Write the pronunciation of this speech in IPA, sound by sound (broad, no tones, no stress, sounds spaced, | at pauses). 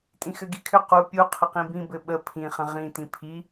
tʼ ĩ x ɘ ɡ i kʰ ʏ q u pʲ u qʰ ə q ĩ b ĩ b ɘ ɓ ə pʰ ĩ χ ə̃ ʁ ĩ t ĩ pʰ i